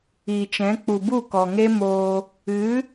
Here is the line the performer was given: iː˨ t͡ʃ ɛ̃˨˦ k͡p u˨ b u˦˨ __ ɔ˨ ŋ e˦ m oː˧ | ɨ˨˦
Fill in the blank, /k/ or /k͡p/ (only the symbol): k